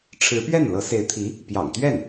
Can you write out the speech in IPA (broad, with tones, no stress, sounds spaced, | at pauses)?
ʈ͡ʂʰ ɻ̩˧˥ p ɥ ɛ˥˩ n l ɤ˧˥ s e˧˥ ɪ̯ t̪ʰ i˧˥ | p j ɑ̰˨˩ ŋ t̪ ɥ ɛ˥˩ n